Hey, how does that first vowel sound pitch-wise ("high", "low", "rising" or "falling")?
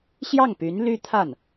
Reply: falling